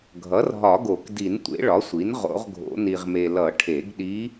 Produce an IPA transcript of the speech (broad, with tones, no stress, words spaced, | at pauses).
ɡʱʌ˩˥rɦɒ˨˩˦ɡo˨˩˦kdi˨˩˦n tʷḛ˩˥ɭɒ˩˥sʷi˩˥n ʁo̰˨˩˦ʁɡʱo̰˨˩˦ ni˨ʁme˨ lʌ˨˩˦ ʈʰe˨˩˦ɡɗi˧˥